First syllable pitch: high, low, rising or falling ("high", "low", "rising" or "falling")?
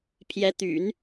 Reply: rising